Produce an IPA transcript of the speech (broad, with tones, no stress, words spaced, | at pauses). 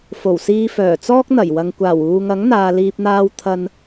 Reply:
fo˨˩wsiː˧fœː˨˩ t͡sɔː˥k̚n̪ɐ˨˩jwɐ˨ŋ kʷaː˨˩wuː˨ŋɐ˨˥ŋn̪aː˨ liː˨p̚n̪aː˧w t̪ʰɐ˧n